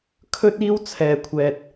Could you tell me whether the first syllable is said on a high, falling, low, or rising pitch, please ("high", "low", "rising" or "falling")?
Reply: high